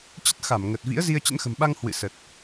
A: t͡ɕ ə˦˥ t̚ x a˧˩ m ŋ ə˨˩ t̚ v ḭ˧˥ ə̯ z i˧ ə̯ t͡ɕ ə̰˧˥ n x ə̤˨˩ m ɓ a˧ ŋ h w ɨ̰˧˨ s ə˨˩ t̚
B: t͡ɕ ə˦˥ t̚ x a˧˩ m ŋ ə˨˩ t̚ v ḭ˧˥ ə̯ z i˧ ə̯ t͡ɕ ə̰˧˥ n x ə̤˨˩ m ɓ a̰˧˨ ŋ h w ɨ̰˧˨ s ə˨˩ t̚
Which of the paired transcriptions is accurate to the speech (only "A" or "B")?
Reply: A